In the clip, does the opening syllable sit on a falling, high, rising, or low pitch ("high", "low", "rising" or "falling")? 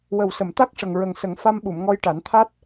low